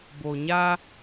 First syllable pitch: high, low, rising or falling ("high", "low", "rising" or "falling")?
low